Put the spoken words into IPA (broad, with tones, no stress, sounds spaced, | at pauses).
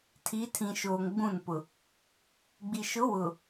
tʰ iː˨˦ tʰ ĩ˨ ʃ oː˨ ŋ ɡ͡b ũ˦˨ n p ʊ˨ | ɡ͡b i˨ ʃ ʊ˨˦ w ʊ˨